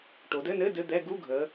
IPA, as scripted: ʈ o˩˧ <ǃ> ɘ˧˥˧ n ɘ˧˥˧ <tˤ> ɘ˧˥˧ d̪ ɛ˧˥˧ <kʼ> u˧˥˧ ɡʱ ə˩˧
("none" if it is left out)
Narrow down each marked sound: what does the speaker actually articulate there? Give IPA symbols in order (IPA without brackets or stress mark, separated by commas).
d, d, ɡ